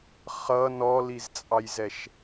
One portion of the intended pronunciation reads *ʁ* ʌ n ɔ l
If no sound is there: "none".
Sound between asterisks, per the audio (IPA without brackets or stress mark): χ